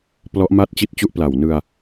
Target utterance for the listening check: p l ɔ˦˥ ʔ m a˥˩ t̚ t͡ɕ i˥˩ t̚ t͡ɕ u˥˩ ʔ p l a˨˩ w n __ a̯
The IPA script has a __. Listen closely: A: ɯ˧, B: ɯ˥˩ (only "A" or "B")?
A